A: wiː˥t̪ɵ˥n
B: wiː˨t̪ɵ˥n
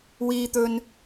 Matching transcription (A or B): A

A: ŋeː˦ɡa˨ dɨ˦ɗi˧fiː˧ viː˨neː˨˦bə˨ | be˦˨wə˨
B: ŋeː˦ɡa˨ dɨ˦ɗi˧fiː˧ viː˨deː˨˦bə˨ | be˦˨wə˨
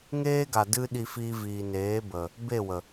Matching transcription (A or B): A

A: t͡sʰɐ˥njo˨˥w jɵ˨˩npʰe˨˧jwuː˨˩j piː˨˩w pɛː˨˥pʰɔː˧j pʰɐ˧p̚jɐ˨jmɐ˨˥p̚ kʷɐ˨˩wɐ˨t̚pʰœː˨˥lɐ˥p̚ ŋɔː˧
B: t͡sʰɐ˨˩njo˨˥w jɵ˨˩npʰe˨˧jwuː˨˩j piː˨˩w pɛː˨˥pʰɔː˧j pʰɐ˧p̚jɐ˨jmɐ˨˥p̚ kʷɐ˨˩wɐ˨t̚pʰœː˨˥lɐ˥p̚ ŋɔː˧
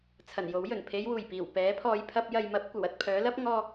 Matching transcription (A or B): B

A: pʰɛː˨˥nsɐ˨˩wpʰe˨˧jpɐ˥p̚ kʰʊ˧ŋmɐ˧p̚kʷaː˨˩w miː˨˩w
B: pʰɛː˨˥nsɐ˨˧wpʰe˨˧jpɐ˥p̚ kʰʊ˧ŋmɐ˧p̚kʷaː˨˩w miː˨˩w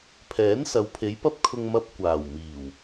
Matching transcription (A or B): B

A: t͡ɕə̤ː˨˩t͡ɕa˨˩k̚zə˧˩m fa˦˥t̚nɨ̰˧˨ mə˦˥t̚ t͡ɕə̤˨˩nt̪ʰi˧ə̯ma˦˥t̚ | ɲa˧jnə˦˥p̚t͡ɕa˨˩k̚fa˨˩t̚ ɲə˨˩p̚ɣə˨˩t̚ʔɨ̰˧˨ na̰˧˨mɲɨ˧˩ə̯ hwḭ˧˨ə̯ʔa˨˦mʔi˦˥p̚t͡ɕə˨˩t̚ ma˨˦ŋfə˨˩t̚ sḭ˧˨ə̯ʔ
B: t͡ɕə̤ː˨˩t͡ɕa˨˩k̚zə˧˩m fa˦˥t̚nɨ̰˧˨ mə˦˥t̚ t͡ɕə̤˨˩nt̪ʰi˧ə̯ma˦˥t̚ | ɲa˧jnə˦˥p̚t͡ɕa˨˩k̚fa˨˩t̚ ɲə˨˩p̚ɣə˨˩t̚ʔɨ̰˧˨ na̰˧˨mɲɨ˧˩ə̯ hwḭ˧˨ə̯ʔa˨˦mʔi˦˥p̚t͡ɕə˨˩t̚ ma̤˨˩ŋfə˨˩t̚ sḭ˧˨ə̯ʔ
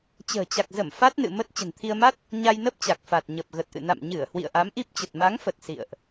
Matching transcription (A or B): A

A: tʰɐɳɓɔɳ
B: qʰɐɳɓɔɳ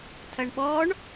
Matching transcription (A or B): A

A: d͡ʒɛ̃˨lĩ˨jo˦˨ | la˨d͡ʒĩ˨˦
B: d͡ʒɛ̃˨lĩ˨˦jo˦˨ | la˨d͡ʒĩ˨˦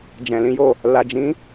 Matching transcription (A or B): B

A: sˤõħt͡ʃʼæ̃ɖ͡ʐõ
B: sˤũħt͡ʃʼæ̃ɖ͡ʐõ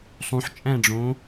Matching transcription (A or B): B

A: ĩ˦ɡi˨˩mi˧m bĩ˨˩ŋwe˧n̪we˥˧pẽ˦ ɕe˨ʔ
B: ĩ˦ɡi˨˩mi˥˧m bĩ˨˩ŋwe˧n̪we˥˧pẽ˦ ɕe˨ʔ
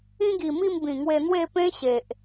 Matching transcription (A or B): B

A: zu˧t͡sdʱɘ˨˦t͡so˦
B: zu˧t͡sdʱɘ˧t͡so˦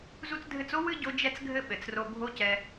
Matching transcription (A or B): B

